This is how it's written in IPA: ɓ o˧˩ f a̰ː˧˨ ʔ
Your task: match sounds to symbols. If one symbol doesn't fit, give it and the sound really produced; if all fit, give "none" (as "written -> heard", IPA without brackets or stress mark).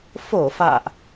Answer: ɓ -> f